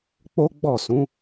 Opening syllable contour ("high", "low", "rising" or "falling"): high